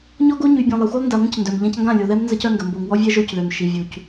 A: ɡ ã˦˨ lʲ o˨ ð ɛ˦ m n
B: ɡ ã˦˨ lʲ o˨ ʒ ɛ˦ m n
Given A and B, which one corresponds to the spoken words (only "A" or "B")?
A